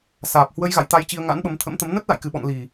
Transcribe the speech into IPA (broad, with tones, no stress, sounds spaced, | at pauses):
s aː˨˩ p̚ h w ə˧ j ɣ a̰˧˨ j t̪ a˧ j t͡ɕ i˧ ə̯ ŋ a̰˧˥ n ɓ ə˨˦ m t̪ʰ ə̰˧˥ m t̪ ə˨˦ m n ə˦˥ t̚ l a̰˧˨ j k ɨ˨˩ ɓ ɔ̰˧˨ n l i˨˩